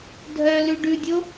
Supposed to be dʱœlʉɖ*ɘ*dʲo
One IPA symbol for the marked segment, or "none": ʉ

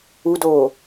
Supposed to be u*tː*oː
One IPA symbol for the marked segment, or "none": d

